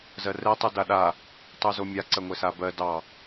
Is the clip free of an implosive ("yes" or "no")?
no